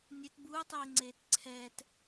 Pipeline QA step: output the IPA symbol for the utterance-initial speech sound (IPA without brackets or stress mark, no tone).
nʲ